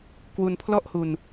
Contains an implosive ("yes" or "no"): no